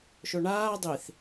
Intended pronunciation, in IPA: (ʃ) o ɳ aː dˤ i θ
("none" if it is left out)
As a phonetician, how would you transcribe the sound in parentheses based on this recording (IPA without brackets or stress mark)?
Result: ʃ